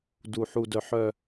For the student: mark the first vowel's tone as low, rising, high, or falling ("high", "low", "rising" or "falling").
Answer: low